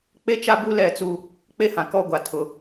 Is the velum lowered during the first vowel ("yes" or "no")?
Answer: no